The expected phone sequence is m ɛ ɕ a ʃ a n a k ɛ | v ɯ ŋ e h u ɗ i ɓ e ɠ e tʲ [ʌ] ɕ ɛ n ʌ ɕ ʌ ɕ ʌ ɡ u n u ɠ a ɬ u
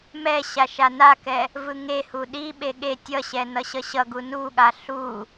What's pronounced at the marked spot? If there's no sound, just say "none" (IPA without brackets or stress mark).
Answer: ʌ